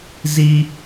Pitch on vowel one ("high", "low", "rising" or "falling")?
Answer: high